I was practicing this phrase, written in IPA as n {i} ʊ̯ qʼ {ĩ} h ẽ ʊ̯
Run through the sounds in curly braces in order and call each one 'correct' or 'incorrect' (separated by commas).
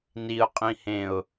correct, correct